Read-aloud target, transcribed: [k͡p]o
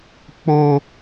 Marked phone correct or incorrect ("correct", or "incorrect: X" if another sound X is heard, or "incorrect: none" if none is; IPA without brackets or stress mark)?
correct